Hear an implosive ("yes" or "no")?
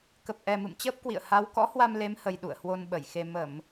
yes